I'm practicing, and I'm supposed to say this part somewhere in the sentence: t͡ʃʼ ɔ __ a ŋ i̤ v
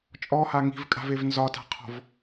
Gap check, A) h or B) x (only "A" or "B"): A